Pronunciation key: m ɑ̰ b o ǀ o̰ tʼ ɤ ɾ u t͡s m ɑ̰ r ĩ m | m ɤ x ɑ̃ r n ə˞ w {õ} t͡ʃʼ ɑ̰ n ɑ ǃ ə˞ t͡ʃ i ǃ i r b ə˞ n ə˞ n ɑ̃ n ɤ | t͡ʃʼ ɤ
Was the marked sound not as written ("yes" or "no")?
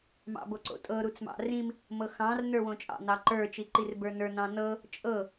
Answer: no